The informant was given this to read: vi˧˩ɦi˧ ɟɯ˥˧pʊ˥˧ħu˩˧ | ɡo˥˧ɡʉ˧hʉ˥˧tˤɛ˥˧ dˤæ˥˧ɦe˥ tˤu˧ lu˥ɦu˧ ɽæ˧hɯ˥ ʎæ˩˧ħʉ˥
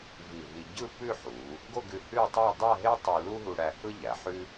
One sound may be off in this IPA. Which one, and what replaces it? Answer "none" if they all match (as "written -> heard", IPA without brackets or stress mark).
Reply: ʊ˥˧ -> ʉ˥˧